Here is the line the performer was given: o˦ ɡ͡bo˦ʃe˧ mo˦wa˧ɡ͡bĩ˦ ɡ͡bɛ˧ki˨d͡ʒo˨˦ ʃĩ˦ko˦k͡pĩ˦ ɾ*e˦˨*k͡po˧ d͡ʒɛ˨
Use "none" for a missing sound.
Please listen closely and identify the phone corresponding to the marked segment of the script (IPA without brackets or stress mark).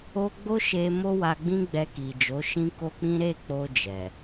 e˦˨